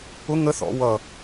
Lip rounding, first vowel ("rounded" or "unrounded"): rounded